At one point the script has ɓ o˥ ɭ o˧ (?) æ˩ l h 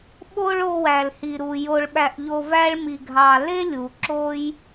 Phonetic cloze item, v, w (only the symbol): w